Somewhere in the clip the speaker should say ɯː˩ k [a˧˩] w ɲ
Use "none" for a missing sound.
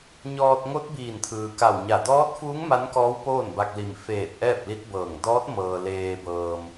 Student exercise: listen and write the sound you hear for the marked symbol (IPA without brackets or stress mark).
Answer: a˧˩